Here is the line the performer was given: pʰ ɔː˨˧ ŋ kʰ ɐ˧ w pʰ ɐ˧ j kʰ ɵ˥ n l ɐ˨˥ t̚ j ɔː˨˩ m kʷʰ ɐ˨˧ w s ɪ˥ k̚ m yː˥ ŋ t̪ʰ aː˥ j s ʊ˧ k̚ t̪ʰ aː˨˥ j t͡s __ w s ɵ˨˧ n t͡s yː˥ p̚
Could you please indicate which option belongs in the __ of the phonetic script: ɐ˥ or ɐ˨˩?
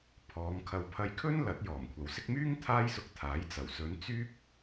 ɐ˨˩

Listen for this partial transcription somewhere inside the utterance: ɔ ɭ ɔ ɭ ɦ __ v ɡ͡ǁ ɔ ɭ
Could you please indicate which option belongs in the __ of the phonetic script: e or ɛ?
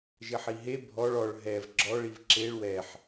ɛ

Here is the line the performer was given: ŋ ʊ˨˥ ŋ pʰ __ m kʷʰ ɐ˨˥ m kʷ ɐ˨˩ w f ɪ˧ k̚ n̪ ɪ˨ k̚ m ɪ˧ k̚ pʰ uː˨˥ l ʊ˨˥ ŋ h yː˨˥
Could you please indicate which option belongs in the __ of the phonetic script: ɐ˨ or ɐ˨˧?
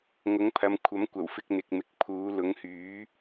ɐ˨˧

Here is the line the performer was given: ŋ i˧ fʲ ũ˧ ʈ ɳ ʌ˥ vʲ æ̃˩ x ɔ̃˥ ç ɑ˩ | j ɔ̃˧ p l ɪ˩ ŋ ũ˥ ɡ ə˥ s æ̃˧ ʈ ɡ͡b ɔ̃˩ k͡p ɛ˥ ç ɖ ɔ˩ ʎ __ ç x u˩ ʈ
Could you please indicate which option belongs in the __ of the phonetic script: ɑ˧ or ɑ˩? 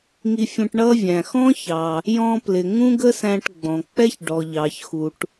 ɑ˩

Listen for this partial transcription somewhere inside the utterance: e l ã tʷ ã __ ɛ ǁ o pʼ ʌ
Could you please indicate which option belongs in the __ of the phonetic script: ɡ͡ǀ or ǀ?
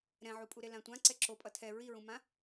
ǀ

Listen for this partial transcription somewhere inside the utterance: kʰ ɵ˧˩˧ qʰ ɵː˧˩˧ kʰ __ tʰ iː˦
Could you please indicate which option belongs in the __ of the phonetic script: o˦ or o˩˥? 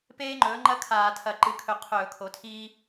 o˩˥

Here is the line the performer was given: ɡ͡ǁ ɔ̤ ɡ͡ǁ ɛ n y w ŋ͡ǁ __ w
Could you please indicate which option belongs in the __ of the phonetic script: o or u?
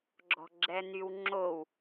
o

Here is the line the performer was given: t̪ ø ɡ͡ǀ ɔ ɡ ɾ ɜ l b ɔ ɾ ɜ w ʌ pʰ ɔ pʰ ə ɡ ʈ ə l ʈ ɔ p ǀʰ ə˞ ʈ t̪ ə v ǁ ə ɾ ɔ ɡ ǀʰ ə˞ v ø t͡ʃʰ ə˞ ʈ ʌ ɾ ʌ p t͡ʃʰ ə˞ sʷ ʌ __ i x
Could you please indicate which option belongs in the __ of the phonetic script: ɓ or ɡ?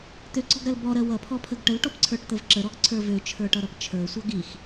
ɡ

